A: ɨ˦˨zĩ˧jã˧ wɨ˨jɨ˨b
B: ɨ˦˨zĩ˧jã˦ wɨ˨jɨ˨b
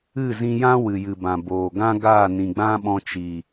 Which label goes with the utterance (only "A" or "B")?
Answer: B